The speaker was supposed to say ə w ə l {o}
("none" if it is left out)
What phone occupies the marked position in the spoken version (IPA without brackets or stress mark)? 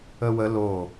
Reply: o